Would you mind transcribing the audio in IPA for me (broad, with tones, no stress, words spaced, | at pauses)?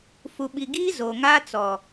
fu˨ɓi˨ɡiː˦ zo˨ŋaː˦t͡sɔ˨